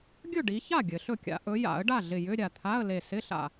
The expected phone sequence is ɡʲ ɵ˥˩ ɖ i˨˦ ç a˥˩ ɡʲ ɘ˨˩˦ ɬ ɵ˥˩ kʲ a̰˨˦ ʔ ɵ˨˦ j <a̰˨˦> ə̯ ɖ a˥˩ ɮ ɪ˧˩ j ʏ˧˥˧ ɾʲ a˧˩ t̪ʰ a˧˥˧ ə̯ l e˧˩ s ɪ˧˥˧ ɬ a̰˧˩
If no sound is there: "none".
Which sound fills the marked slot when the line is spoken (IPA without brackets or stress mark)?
a̰˨˩˦